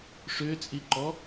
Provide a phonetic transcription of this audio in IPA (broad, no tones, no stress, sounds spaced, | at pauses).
ʂ ʏː t͡sʼ i ǃ ɔ